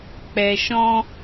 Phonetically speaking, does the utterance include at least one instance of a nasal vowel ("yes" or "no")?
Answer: yes